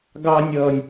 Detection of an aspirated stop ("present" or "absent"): absent